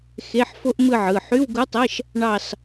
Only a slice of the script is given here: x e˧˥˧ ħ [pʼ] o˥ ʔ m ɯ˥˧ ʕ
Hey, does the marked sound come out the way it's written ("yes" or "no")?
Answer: no